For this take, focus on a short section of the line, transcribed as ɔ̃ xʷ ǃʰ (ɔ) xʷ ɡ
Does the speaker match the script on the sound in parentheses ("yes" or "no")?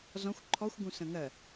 yes